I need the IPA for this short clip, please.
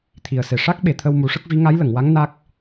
t̪ʰ i˨˩ ə̯ s e˨˩ ʂ a˦˥ k̚ ɓ e˨˩˨ t̪ʰ ə˧ w m u˨˩˦ ʂ ə˦˥ k̚ v i˧˥ ŋ a˧˥ j l ə˨˩˨ ŋ w a˧˥ ŋ n a˦˥ k̚

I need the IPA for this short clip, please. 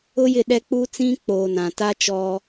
ʊ˦ j ɪ˦˨ ɗ ɛ˦ k͡p u˦ t͡s ĩ˦ k͡p oː˨ n ã˨ t a˦ t͡ʃ ɔ˦

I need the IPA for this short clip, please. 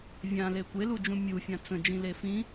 vʲ ã l e kʷ e l u d͡ʒ ũ mʲ u fʲ ã t͡s ə̃ d͡ʒ ĩ l e f ĩ

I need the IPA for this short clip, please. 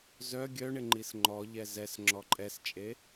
z œ ɡʲ œ ɳ ɪ ŋ͡ǃ i s ŋ͡ǃ ɔ ʎ ɛ z ɛ s ŋ͡ǁ ɔ ǃʼ ɛ s t͡ʃʼ e

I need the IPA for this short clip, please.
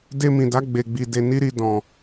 d e˧ m ĩ˨ d a˨˦ ɡ͡b e˧ ɡ͡b i˧ d e˧ n i˦ ɾ i˧ d ɔ̃˨

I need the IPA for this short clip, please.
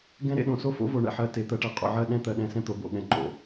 ɡ ɛ̃˦ ɾ ḛ˨ ɗ õ˨ s o˦ f o̰˦ v o˨ ɳ ɛ̰˨ ħ ɜ˨ t e˨ t̪ ɜ˨ ʈ ɜ˨ qʼ o̰˨ ʕ ɜ˦˨ ɗ ɛ̃˦ t̪ ɜ˨ ɗ ɛ̃˦ s ɛ̃˦ t̪ o˨ b o̰˨ ɠ ɛ̃˨ ŋ͡ǃ o̰˨

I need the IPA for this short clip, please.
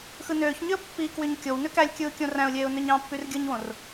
x ɯ n øː ç ɲ y ə̯ pː i k w y ɲ kʲ o w n ø k æ lʲ kʲ ɯː kʲ õ r æ̃ ʊ̯ lʲ eː ʊ̯ n ø ɲ ɑ̃ pː y r ɡʲ ɯ ɲ w õ r

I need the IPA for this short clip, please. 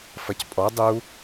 f ɐ c pʼ ɔ dˤ u

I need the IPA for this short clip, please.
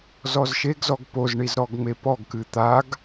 z ɔ z ʃ e ɡ z ɔ ɡ p o z ɳ i z ɾ ɔ ɡ ŋ͡m e p ɔ ɡ k ɨ t̪ a ɡ

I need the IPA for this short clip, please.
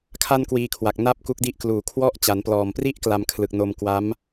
kʰ a˥˩ n k w iː˧ kʰ w a˨˩ k̚ n a˥˩ p̚ k u˦˥ k̚ d i˦˥ ʔ k l uː˨˩ kʰ w ɔ˥˩ ʔ t͡ɕ a˩˦ n p l ɔː˨˩ m p r i˦˥ ʔ k l a˧ m kʰ l ɯ˨˩ k̚ n o˧ m k w a˦˥ m

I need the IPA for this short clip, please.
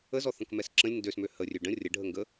ə z ɔ θ ə̃ k m ɛ s ǁ ə̃ lʲ n d ø s m ø h ə rʲ ø ɖ ə̃ rʲ ə ɖʱ ə ŋ ɡ ə

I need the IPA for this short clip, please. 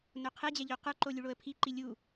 n o qʰ ɛ d͡ʑ ɛ ʎ o q ə˞ ǃ o lʲ u ɭ o ə̯ pʰ i ǃ i lʲ u

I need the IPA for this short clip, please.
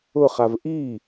ʊ χ a v ʔ i

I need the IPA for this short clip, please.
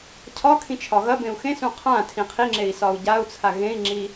cʰ ɒ kʰ ĩ t͡ʃʰ ɒ ɣ ɐ b ẽ u̯ x ẽ s ũ qʰ ã tʰ ĩ qʰ i ŋ͡ǁ e i̯ s ɒ u̯ ɟ a u̯ t͡sʰ a ɣ ẽ i̯ ŋ͡ǁ i

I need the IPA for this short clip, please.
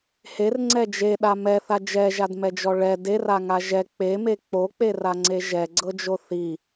h e r ŋ͡ǀ ɛ d͡ʒ e ɗ a m ɛ θ a d͡ʒ ɛ ʒ a d m ɛ d͡ʒ ɔ ɭ ɛ d e r a ŋ a ʒ ɛ k͡p e m e k͡p o k͡p e r a ŋ͡ǀ e ʒ ɛ ɡ͡ǀ ɤ d͡ʒ o θ i

